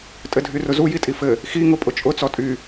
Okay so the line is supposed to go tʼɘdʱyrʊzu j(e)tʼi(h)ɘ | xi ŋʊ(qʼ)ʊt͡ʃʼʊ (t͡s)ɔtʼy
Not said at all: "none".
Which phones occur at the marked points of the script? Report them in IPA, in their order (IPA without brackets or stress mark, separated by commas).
i, f, pʼ, t͡s